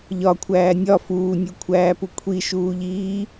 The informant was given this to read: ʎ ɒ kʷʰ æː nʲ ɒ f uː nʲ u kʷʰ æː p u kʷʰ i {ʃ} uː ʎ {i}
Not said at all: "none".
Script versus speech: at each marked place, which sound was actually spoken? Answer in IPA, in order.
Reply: ʃ, iː

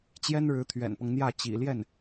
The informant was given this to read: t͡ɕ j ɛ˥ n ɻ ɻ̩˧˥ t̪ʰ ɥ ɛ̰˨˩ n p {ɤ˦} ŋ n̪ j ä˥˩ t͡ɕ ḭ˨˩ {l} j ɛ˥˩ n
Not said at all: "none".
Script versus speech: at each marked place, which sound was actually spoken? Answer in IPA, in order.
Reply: ɤ˦, l

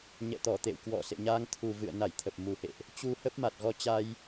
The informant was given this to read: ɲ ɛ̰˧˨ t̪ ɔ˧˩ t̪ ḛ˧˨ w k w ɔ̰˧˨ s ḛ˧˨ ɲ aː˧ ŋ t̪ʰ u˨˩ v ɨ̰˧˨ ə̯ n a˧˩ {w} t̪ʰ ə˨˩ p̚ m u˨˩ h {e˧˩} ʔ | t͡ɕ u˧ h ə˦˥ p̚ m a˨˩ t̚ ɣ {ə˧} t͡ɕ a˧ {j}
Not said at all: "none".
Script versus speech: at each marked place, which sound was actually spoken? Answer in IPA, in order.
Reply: j, ḛ˧˨, ɔ˧, j

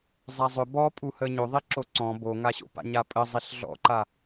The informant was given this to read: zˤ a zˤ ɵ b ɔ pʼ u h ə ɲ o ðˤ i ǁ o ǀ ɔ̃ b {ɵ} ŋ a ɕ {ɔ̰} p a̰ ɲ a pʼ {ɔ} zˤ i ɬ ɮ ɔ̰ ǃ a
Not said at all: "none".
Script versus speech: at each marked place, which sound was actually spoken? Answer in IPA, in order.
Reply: o, o̰, ə

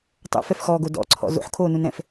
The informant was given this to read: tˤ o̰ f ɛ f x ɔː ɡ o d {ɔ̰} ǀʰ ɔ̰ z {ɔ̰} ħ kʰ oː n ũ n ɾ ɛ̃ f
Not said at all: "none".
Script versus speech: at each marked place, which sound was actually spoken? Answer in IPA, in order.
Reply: ɔ̰, o̰

